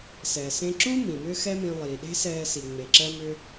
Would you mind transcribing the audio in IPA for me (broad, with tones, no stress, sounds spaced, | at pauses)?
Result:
s ɛː˩ s ẽ˧ ǁ ũ˥ m ĩ˩ m ʏː˥ x ɛ˥ m ĩ˧ lˠ iː˩ ɗ e̤˥ s ɛː˧ s i˩ ŋ͡m e˩ ǁ ɜ˧ m ʏ˧